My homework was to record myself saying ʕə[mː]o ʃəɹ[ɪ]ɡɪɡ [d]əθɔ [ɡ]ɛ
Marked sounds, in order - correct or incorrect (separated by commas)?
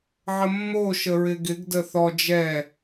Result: correct, correct, correct, incorrect